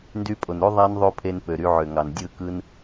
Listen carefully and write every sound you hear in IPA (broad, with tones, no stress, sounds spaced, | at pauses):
n d y˧ pʼ o˨ n ɾ o˦ ðˤ æ˦ n ðˤ o˦ pʰ e˧ n p ø˨ ɾ y˧ ʕ ø˨ ŋ ɑ˨ n dʲ ɯ˦˨ k ɯ˦ n